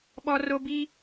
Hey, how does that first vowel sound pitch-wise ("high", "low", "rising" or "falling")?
high